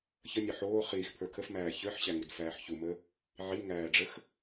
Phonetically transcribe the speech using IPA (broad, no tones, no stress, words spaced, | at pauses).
çənʲɒ ħoː χiːxpʰə˞ kʰəfmæː çə˞ħɕæŋudfæːħ çumə | ʕiŋæːɖ͡ʐəx